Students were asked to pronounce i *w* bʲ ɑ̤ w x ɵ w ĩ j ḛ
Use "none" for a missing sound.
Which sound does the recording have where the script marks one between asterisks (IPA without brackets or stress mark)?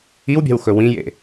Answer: w